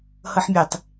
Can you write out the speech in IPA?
hɤħmʲetˤ

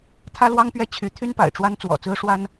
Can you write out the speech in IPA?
t̪ʰä˥lwɑ˥ŋpɥɛ˥˩ t͡ɕʰy˧˥t̪ʰy˥npa̰˨˩ɪ̯ʈ͡ʂwa˥n t͡swɔ̰˨˩t͡sɹ̩˥ʂwa˥n

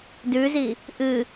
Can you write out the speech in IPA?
dʉzi | ʔɨ

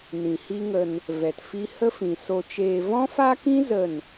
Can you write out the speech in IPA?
nĩ˨hi˦ŋə˧n | vɛ˨tfi˦ hə˦fĩ˨ so˧t͡ʃeː˧ vɔ̃˦faː˦kĩ˦ zə˦˨n

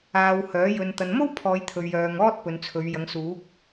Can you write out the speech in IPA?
aː˧whœː˨˥ jɵ˨nt̪ɐ˨nmo˥w pʰɔː˨˧jt̪ʰɵ˨ɥjœː˨ŋɔː˥t̚ pɵ˨˧nt͡sʰɵ˨˧ɥ jɐ˨˧ŋsuː˨˥k̚

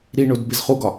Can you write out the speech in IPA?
ɾiɳod bezχuɡɒ

